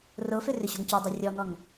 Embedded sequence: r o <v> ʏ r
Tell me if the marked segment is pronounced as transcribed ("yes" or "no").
no